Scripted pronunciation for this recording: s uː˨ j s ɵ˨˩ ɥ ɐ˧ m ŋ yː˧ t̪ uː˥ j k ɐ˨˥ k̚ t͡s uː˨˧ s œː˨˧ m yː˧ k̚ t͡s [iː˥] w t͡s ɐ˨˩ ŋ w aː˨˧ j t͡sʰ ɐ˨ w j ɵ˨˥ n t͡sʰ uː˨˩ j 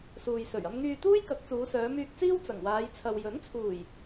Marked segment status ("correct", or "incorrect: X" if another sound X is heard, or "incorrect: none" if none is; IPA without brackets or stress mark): correct